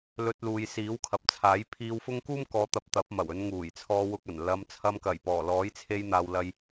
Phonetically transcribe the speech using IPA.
l ɵ˧ t̚ l uː˨ j s iː˨˥ w kʰ ɐ˨ p̚ t͡sʰ aː˨˥ j pʰ iː˧ w f ʊ˥ ŋ k uː˥ m k ɔː˨˧ t̪ ɐ˨˥ p̚ t̪ ɐ˨˥ p̚ m ɐ˨˩ w ɵ˨˧ n ŋ uː˨˩ j t͡sʰ ɔː˧ w ʊ˧ k̚ ɐ˨˩ n l ɐ˨˧ m t͡sʰ ɐ˧ m k ɐ˨˩ j p ɔː˨˩ l ɔː˨˥ j t͡sʰ e˧ j n̪ aː˨ w l ɐ˧ j

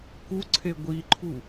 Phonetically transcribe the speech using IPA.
k u ǀʰ e ɡʷ i ǃʰ u

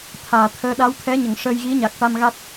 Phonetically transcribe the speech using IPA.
t̪ʰ aː˨˩˨ t̪ʰ əː˧˥ ɗ a˧˥ w t̪ʰ ɛ˧˥ ɲ ə˨˩˨ ŋ ʂ əː˧ j ɣ i˧˥ ɲ a˨˩ k̚ ʈ a˧ m ɣ a˦˥ t̚

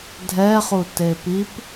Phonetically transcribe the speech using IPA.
dʱ ɛ χ u t e p i p

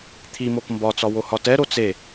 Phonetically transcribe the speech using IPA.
t̪ʰ i m o k m b ɒ t͡s ɒ w o h ɒ t ɛ ɾ o t͡s e

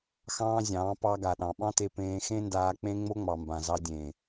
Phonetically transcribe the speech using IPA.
x ɑ̃ː˦ zʲ ɑ̃ː˨˦ p ɑ˧ ɡ a˨ ɗ ɑ̃˨ ɓ ɑ̃˦ t e˧ p ẽː˧ x ẽ˦ n d aː˧ k͡p ẽ˦ ŋ͡m o˦ ŋ͡m ɑ˨ m b ã˨ z ɑ˧ dʲ ẽ˨

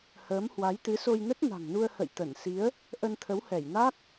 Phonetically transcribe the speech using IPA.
h əː˨˦ m h w a˨˦ j t̪ ɨ˨˦ s o˧ j n ə˦˥ t̚ n a̤˨˩ ŋ n u˧ ə̯ h ə̰˧˨ j t̪ ə˧˩ n s i˨˦ ə̯ | ʔ ə˧ n t̪ʰ ə˨˦ w h ɛ˧˩ j n a˦˥ k̚

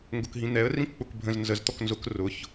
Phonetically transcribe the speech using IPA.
ŋ ɡ ʊ k ɦ ĩ n̪ ɛ ə̯ r ĩ k k͡p ʊ k bʱ ə̃ z n z ə z t̪ ɔ k n z ʊ k r ʊ ç

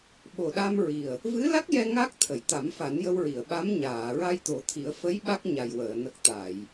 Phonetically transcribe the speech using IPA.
ɓ o˨˩ ɗ a˧ m ɹ i˨˩ ə̯ | v ɨ˧˥ l a˦˥ k̚ j ɛ˧ ŋ a˦˥ k̚ t̪ʰ ə˨˩˨ j t̪ a˨˩˦ m f a˨˩˦ n j ə˧ w ɹ i˨˩˨ ə̯ ɓ a˧˥ m ɲ aː˨˩˨ ɹ a˧ j t̪ o˨˩˦ t̪ʰ i˨˩˦ ə̯ f ə˧˥ j ɓ a˦˥ k̚ ɲ a˨˩ j w əː˨˩˨ n ə˨˩ k̚ t̪ a˨˩˨ j

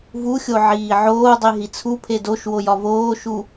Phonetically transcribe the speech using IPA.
v u xʲ o ʕ iː ʕ oː dˤ i ɦ i t͡sʰ u pʰ e d o ʃ w o j ɒ v oː ʃ u

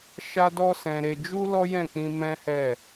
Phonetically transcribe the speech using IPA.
ʃ a˦ d ɔ˦ s ɛ̃˧ ɾ e˧ d͡ʒ u˦ l ɔ˦ j ɛ̃˦˨ k͡p ĩ˧ m ɛ̃˦ h ɛ˦˨

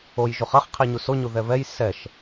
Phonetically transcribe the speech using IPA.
o j ʒ u χ ɐ χ qʰ i ɲ u s o ɲ u ð ɛ β ɛ j s ɛ ʃ

